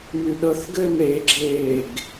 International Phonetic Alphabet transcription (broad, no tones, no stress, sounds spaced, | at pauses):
m y ɗ ɤ θ ɡ ɘː m ɾ e ɡ͡ǁ eː ɡ